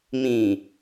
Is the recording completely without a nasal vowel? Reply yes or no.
no